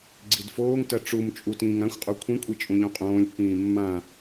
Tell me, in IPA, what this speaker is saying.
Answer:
ɡ͡ǀ i d f oː ŋ t ɜ ʈ͡ʂ u m t͡ʃʼ u t ĩː ŋ ã xʷ qʼ u kʷʰ ĩ kʷʼ i t͡ʃʼ ũ ʎ õ qʼ õː lʲ pː ĩː mː ã

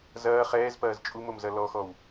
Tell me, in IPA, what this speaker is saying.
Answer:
z ɐː χ ɛː z p ɐː z t͡ʃʼ u m o m z ɐ l ɔ x ɔ w

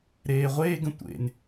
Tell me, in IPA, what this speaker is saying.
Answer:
ɾ eː ʁʷ eː ɡ ə̃ tʷ ḛ n

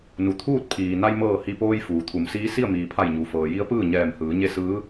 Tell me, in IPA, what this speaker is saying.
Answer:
n u˩ t̪ʰ uː˥˨ t̚ pʰ iː˩ n a˧ j m ɤː˧˩ h i˧˩ p oː˧ j f uː˩ t̪ʰ u˩˧ m s iː˧˥ s i˥˨ ə̯ m iː˩ pʰ a˧˩ j ɲ u˩ f ɤː˩ j i˧˥ ə̯ p ɯː˥˨ ɲ ɛː˧˩ m h ɯː˩˧ ɲ e˥˨ s ɯː˧˥

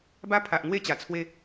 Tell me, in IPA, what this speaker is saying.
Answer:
b a˦ pʰ a˨ ʔ ŋ w e˦ t͡ɕ a˨˩ t͡sʰ w e˥˧

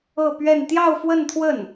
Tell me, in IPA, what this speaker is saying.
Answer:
ɤ˥˧ p ɥ ɛ˥˧ n t̪ j ɑ˥˧ ʊ̯ f w ə˥˧ n t̪ʰ w ə˥˩ n

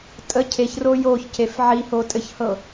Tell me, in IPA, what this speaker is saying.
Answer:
tʼ ə cʰ e ç r o j o ç c e f ʕ i h o tʼ ɘ ç h ɤ

